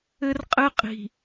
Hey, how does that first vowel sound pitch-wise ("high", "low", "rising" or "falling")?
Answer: high